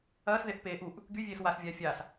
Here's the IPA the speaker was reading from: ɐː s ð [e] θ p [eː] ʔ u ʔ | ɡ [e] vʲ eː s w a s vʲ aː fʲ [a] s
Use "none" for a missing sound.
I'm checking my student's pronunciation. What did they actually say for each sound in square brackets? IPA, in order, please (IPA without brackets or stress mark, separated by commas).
e, eː, y, aː